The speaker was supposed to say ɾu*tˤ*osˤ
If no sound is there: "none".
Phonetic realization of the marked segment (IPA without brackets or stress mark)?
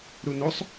n